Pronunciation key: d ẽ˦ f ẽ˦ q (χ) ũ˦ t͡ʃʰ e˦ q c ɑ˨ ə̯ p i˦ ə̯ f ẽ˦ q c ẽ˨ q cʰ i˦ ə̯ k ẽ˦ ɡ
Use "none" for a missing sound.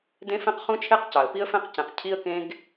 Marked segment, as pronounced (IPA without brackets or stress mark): χ